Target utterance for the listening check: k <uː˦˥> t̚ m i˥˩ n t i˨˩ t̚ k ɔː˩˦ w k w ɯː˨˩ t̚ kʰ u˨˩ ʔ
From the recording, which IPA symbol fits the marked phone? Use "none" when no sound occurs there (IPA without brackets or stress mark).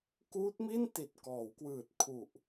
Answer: uː˦˥